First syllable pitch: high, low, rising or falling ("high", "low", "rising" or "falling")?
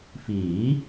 rising